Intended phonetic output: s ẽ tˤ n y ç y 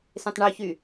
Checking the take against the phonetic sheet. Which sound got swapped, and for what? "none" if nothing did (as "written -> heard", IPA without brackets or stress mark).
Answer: n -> ɳ